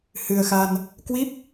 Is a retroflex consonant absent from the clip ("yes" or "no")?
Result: yes